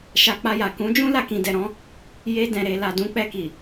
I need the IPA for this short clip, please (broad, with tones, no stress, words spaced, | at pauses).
ʃa˧k͡pa˧ja˨ kũ˨˦d͡ʒũ˦ la˧kĩ˨dɛ˨ɾɔ̃˨˦ | je˧dɛ̃˨ɾe˨ la˨dũ˨˦k͡pɛ˧ki˨